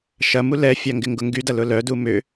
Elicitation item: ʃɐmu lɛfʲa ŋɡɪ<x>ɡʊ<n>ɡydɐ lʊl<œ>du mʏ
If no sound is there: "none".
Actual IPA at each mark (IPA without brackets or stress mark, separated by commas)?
ŋ, ŋ, œ